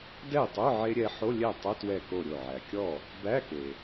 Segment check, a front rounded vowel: present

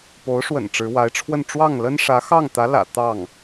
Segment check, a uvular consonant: absent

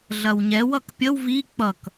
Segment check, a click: absent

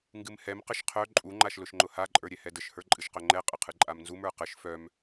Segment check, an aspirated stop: present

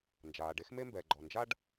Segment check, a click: present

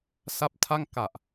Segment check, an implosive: absent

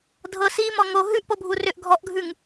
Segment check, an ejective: absent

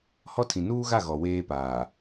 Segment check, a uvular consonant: absent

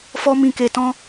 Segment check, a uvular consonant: absent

